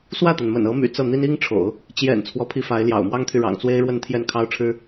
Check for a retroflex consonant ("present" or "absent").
present